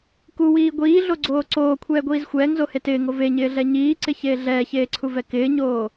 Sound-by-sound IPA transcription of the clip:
k u w iː ɡʷ iː ɮ o ɡ͡ǀ oː ǀ oː kʷʰ ɛː ɡʷ iː z xʷ ɛː ŋ z o h e t ɪː ŋ o v e ɲ ɪː ɮ ɛ ɲ iː ǀ ɪ ç eː ɮ ɛː ç eː ǀʰ u v ɛ k ɪː ɲ oː

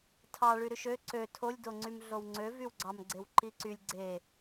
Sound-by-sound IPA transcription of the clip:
tʰ ɑ ɭ y ɾ y ʃ ø ǀ ø tʰ o lʲ d o ŋ͡ǀ y m ɮ o w ŋ͡ǀ ø v y w ɡ͡ǀ ɑ m ɡ͡ǀ e w ǃ i ǀ y lʲ ɡ͡ǀ e

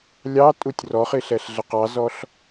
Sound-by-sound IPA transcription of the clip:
lʲ ɑ tʼ u tʲ r ɔ χ i ɬ ɛ ɬ ɮ ə q ɑ z ɔ ɬ

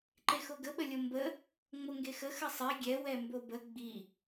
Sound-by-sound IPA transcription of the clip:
ǃ e x o ɡ ə ɓ ə lʲ o m b ə | ŋ͡m o ŋ ɡ e x ə x ə sˤ e ɡʲ ɛ w ɛ m b o b ə ɡ͡b i

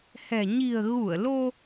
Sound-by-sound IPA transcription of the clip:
h ɛ̤˨˩ ɲ i̤˨˩ ə̯ ɣ u˧˩ ə̯ l o˧

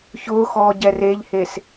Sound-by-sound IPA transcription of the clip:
ç ʊː x ɔː ɟ ɛ r e ʎ h e s

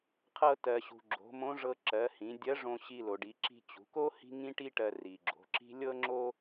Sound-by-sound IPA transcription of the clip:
qʰ ɤ˧ t ɜ˩ ɕ ṳ˩ ɡ͡ǁ o̤˩˧ m õ˧˥ ʐ ɤ˧ ǁ ɜ˩˧ h ĩ˩˧ dʲ ɜ˧˥ ʐ õ˧ ɕ i˧ l o˩ ɖ i˩˧ ǁ i̤˧ t͡ɕ ṳ˩˧ k o˥ h i̤˥ ŋ ĩ˥ ʈ i˥ ʈ ɜ˧ r i˩ ɡ͡ǁ o̤˩˧ ǁ i̤˥ lʲ ɤ˥ ŋ͡ǁ o˥

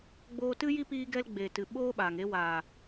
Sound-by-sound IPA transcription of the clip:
ɡ͡b oː˧ t ɨ˦ j i˦ p iː˦ ɡ ɛ˦ l ɡ͡b e˨ t ɨ˨ ɓ oː˦ ɓ aː˨ ŋ e˧ w aː˨

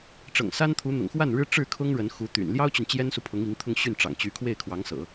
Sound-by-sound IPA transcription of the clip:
ʈ͡ʂ ɤ̰˨˩ ŋ s a˥ n t̪ʰ u˧˥ n̪ ʊ̰˨˩ ŋ x w a˥˩ n ɻ ɻ̩˥ ʈ͡ʂ ɻ̩˥˩ kʰ ʊ˥ ŋ ɻ ə˧˥ n x u˧˥ t̪ y̰˨˩ n l j ɑ˥ ʊ̯ t͡ɕ y˨ n t͡ɕ j ɛ˥ n s u˨ pʰ ʊ˧˥ ŋ i˧˥ ŋ t̪ʰ ʊ˥˧ ŋ ɕ y˥˩ n ʈ͡ʂ ɑ̰˨˩ ŋ t͡ɕ y˧˥ kʰ w e˥˩ ɪ̯ kʰ w ɑ˧˥ ŋ s ɤ̰˨˩˦

